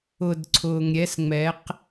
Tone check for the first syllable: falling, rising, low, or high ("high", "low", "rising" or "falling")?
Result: low